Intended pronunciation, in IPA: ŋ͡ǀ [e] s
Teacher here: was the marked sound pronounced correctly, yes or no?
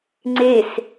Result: yes